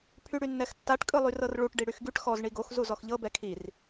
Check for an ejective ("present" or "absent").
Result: present